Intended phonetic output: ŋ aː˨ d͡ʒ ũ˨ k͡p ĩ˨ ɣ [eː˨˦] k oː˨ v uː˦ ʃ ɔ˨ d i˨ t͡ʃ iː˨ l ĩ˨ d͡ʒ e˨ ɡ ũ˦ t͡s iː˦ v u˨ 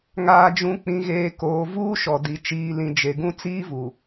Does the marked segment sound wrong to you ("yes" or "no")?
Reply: yes